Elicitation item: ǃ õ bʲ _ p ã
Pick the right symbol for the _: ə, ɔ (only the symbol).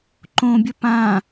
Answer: ə